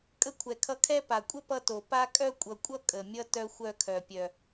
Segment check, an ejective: present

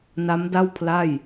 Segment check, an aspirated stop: present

